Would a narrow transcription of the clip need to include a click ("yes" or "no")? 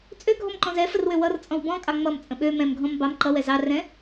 yes